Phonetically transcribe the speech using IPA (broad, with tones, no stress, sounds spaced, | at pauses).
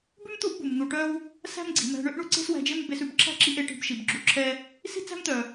b ʉ˦ m t̪ u˦ ʔ b u˨ m n̪ u˨ ʈ œ˦ w | s æ̤˦ m ɡ͡ǀ i̤˨ m æ̤˧ ɳ ø˦ ʔ ɳ u˦ ǀ e̤˦ s w æ̤˧ d͡ʒ e˦ m b e˧ s ʉ˨ b ǁʰ æ̤˦ ǁ i˧ ʔ e˧ ʈ i̤˧ b ʃ i˨ b ɡ͡ǁ u˧ ǁʰ ɛ˦ | s i̤˦ t͡s æ̤˦ m t̪ œ˨